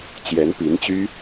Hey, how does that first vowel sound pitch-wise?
rising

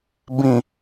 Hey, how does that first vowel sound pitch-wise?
low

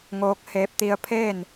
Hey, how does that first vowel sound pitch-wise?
rising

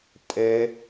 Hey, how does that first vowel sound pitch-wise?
high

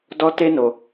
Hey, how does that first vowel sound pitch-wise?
high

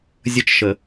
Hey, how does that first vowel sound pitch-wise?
falling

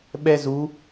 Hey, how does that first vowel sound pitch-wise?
high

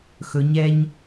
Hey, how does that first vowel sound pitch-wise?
rising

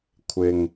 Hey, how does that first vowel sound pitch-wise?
low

